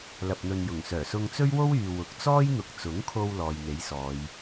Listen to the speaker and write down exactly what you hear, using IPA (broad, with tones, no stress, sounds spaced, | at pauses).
l ɐ˨ p̚ n̪ ɵ˨ n j ʊ˨˩ ŋ s œː˨˩ s ʊ˧ ŋ t͡s ɵ˥ ɥ w o˥ w yː˨ w ʊ˨˥ k̚ t͡s ɔː˥ j n̪ ʊ˨ k̚ t͡s ʊ˨˥ ŋ kʰ o˧ w l ɔː˨ j n̪ e˨˥ j s ɔː˨˧ j